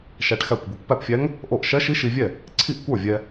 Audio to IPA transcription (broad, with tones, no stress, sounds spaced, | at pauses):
ʃ æ˧ ʈ x æ˥˩ kʷ bʲ e˧ kʷ p æ˥˩ p fʲ æ˧˥ ŋ | ʔ o˥˩ ʔ ʃ ɛ˧˥ ʃ i˧˥ ʃ i˧ vʲ ɛ˥˩ | ǀʰ i˥˩ ʔ kʷ ə˞˥˩ vʲ ɛ˧